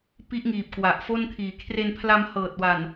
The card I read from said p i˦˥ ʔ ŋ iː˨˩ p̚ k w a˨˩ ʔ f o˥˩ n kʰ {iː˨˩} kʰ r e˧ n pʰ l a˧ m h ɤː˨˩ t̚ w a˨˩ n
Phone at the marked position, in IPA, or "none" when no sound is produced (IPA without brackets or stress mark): iː˨˩